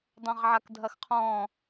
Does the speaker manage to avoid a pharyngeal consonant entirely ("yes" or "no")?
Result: no